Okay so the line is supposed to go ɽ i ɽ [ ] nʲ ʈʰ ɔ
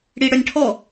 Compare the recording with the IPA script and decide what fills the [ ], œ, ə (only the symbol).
œ